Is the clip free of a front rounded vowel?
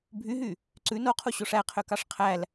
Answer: no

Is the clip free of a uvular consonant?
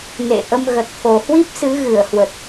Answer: yes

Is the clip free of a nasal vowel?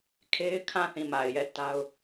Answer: no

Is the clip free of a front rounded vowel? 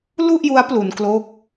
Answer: yes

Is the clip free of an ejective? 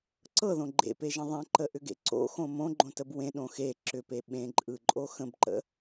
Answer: no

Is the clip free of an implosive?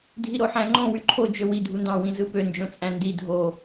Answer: yes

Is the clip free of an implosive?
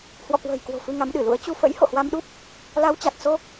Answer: no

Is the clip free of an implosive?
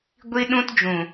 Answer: no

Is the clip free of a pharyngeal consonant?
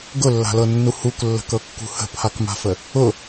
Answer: yes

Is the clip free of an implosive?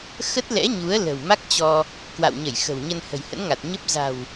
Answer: yes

